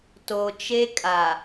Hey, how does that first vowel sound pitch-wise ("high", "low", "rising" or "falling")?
low